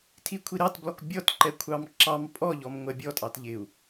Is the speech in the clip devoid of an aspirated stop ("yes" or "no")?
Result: no